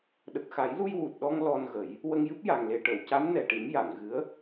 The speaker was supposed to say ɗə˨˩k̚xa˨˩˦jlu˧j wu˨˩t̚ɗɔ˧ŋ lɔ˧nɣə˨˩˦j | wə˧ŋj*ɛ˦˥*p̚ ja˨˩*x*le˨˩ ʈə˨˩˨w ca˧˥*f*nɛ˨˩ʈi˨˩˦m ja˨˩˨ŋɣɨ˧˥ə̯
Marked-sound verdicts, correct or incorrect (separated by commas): incorrect, incorrect, incorrect